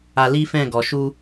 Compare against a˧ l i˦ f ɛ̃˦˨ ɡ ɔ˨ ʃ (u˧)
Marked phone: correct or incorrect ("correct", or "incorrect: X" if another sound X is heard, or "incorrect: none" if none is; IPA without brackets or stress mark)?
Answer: correct